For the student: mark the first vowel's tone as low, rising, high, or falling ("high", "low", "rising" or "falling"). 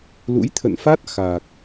rising